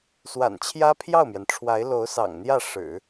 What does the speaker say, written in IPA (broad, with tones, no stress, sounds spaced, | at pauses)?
s w a̰˨˩ n t͡ɕʰ j ä˥ pʰ j ɑ˥˩ ʊ̯ m j ɛ˩ n ʈ͡ʂʰ w a˧˥ ɪ̯ l o˧˥ ʊ̯ s ɑ̰˨˩ ŋ n̪ j ä˥˩ ʂ ɻ̩˨˩˦